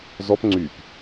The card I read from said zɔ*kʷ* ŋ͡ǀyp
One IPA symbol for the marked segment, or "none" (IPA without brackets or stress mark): p